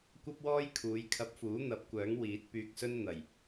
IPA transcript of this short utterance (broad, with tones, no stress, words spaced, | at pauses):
kʷɐ˥p̚wɔː˥jkʰuː˨˧j kʰɐ˧p̚fuː˨˥ n̪ɐ˨˥p̚kʷœː˨˥ŋ wiː˨˥t̚pyː˧k̚sɵ˥n n̪ɐ˨˩j